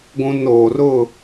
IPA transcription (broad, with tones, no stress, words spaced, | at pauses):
ɡʷũ˦n oː˨rʊ˦˨